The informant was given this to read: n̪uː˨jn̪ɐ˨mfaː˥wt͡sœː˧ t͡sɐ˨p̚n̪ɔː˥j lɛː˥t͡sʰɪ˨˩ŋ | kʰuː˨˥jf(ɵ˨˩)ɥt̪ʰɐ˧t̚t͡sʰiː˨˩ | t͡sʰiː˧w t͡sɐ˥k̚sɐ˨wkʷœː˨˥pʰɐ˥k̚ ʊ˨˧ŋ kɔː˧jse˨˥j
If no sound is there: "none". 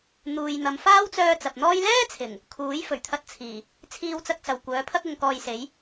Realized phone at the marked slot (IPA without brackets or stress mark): ɵ˨˩